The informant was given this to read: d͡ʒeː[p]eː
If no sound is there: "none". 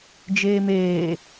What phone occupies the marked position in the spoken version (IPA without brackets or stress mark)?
m